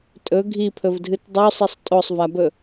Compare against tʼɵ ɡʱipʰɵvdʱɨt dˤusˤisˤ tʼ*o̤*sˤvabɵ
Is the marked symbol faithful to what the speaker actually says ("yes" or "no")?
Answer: no